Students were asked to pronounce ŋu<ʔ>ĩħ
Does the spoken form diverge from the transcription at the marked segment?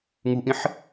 no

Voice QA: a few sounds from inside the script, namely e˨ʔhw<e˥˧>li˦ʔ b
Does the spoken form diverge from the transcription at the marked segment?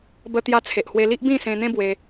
yes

